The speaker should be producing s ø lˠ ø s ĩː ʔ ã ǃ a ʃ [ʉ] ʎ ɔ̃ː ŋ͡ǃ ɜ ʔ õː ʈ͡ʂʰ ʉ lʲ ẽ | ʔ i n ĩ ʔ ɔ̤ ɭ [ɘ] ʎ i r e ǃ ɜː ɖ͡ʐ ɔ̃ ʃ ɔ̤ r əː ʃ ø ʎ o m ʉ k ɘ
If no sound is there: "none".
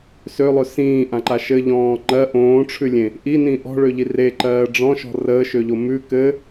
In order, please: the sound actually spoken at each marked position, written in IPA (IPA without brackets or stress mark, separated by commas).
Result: ɘ, ø